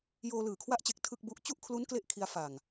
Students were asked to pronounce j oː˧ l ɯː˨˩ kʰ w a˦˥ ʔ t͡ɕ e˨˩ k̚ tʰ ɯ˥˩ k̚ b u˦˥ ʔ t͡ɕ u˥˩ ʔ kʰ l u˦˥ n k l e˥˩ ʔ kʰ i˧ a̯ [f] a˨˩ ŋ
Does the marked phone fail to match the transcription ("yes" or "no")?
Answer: no